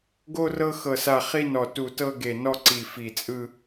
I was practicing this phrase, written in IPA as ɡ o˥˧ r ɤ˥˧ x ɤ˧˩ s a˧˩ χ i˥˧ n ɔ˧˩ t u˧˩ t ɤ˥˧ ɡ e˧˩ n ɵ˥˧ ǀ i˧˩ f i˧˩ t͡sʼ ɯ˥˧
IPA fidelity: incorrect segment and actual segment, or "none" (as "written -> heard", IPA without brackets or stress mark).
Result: ɵ˥˧ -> ɔ˥˧